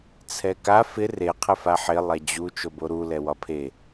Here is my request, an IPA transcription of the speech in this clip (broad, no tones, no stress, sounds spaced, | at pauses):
t͡sʰ ɛ k a f ɪ r e qʰ ɪ f a ħ ɪ lˠ ɛ d͡ʑ u t͡ʃ o b o ɾ u l ɛ w ɒ pʰ e